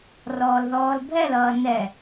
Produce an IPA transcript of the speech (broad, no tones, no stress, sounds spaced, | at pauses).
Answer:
r ɔː l ð ɔː l bʱ ɛ l ʌː n ɛ